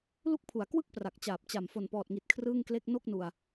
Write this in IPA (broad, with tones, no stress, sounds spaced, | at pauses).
l u˦˥ k̚ pʰ u˩˦ a̯ k w ɯ˥˩ k̚ p r a˨˩ k̚ t͡ɕ aː˨˩ p̚ t͡ɕ a˨˩ m f o˨˩ n p ɔː˨˩ t̚ ŋ i˨˩ t̚ kʰ r ɯː˥˩ ŋ k l e˥˩ k̚ n o˥˩ k̚ n u˧ a̯